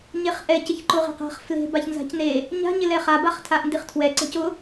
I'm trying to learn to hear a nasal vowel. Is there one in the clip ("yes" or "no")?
no